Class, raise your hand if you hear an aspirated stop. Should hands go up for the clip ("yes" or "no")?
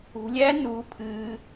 yes